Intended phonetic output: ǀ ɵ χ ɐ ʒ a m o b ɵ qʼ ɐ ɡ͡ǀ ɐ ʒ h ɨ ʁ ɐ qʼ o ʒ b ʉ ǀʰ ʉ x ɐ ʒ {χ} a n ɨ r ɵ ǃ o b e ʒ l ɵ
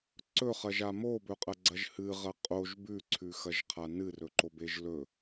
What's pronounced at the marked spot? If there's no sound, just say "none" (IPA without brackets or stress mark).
qʰ